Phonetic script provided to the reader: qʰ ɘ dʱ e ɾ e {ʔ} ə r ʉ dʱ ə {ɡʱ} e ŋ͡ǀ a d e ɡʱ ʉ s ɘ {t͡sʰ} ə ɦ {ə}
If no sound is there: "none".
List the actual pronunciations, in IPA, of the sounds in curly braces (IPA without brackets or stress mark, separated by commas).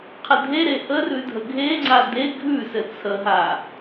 ʔ, ɡʱ, t͡sʰ, a